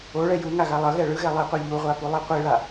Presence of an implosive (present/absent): absent